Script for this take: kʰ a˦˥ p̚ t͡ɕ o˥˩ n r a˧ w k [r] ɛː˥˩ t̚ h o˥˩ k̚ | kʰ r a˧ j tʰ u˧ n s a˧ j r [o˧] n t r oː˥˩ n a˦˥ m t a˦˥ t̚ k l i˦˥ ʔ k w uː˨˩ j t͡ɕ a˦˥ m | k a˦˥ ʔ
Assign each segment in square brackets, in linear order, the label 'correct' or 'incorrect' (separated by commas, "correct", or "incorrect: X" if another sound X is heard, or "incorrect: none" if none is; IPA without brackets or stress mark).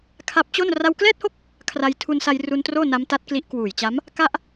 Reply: incorrect: l, incorrect: u˧